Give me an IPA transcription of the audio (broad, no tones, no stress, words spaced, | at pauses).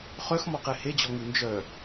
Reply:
χœxmɔqe hed͡ʑɔŋu nd͡ʒœ